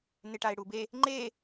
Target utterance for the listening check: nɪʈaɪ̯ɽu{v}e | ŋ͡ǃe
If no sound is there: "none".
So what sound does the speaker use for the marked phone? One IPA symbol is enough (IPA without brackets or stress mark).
b